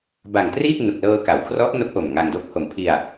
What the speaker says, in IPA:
b a˨˩ ŋ t r iː˥˩ k̚ n u˨˩ k̚ l ɤː˧ k a˩˦ w kʰ r ɔ˦˥ ʔ n o˦˥ k̚ ʔ o˨˩ m ŋ a˧ ŋ d o˥˩ k̚ h o˨˩ m pʰ i˧ a̯

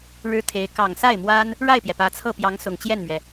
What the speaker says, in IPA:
ɻ ɻ̩˥ t̪ʰ e˧˥ ɪ̯ k ɑ˨˩ ŋ s a˥˩ ɪ̯ m w a˥ n | ɻ a˥˩ ɪ̯ p j ɛ˩ p ä˧˥ t͡sʰ ɤ˥˩ p j ɑ˧˥ ŋ s ʊ˨˩ ŋ t͡ɕ j ɛ˥˩ n m ɥ ɛ˩

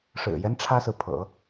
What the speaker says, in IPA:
ʂ ɻ̩˨˩ j ɛ˦ n ʈ͡ʂʰ ä˥ s ɹ̩˨ pʰ ɤ̰˨˩˦

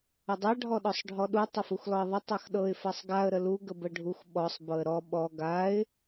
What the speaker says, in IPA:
ə dˤ a ɖʱ ɔ ɗ ɔ sˤ ɖʱ ɔ ɗ u tˤ ə f u x l ɔ ɪ̯ ðˤ ə tˤ a x ɗ ɤ ɪ̯ f a sˤ ɡ a ə̯ ɾ ə l u ɡ ə b ə ɖʱ u x ɓ ɔ sˤ b ɤ ə̯ ɾ ɔ ɓ ɔ ɡ a ɪ̯

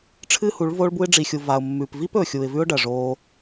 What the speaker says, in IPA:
ʈ͡ʂʰ ɨ˦ h u˨˦ ɭ v oː˧ ɭ b u˧ ɪ̯ ɖ͡ʐ i˨ xʲ u˨ v a˨ ʊ̯ mː ʉ˨ p v i˦ p ɵ˨ xʲ u˨ ɪ̯ v ʉ˦ ʊ̯ ɖ ɐ˨ ʐ oː˧

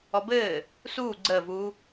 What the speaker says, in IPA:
ɔ b ɘː | s uː ɡ͡ǀ əː v uː

